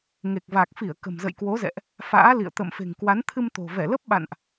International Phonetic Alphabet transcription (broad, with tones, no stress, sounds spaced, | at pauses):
ŋ e˨˩ k̚ v a˨˩ k̚ f i˧˩ ə̯ k ə̤˨˩ m z ə̰˧˨ j k w o˨˦ z ɛ̰˧˨ ʔ | f a̰ː˧˥ l ḭ˧˨ ə̯ t̪ ə̰˧˨ m f e̤˨˩ ŋ k w a˨˦ n t̪ʰ ɨ˧ m t̪ o̤˨˩ v ɛ˧˩ l ə˦˥ p̚ ɓ a̰˧˨ n ʔ